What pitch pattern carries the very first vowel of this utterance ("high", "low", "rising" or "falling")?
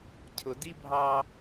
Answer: low